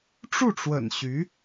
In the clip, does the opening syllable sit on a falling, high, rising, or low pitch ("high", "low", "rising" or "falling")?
falling